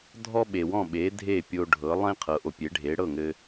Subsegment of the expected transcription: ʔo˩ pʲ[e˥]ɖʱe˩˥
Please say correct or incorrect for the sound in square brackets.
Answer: incorrect: e˩˥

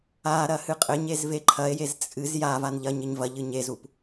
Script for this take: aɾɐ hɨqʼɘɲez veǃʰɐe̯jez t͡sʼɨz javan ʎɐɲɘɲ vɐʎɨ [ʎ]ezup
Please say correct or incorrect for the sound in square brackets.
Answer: incorrect: ɲ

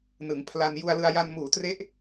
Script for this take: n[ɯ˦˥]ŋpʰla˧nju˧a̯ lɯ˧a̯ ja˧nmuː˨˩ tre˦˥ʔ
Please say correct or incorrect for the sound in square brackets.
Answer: incorrect: ɯ˩˦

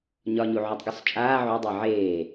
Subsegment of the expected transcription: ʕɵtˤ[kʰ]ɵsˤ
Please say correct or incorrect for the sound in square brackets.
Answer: incorrect: ɡ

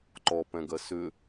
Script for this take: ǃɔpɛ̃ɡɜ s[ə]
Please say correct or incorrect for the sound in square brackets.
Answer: incorrect: ʏ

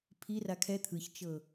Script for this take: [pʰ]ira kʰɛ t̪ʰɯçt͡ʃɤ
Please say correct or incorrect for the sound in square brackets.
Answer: correct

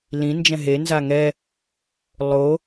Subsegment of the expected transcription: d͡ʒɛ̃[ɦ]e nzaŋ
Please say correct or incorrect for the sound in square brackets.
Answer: correct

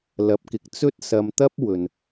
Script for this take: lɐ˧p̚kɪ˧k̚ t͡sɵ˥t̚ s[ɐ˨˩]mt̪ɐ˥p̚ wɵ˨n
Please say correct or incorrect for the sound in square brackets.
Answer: incorrect: ɐ˧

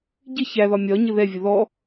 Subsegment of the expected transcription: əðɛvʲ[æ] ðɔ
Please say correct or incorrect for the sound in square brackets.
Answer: incorrect: ə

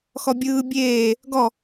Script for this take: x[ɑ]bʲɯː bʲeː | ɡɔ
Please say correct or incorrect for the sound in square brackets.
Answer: incorrect: ɔ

